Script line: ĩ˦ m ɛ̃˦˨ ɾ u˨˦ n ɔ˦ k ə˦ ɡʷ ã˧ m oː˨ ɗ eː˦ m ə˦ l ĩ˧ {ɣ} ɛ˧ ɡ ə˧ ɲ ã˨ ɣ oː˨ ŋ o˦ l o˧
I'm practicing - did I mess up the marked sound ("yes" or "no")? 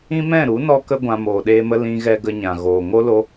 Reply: no